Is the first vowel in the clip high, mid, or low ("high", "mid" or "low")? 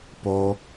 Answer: mid